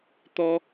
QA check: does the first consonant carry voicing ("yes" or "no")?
no